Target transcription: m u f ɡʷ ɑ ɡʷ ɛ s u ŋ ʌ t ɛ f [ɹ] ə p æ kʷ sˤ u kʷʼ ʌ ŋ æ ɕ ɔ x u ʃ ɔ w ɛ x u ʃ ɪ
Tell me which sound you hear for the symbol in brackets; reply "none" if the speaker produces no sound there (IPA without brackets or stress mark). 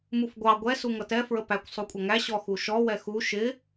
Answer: ɹ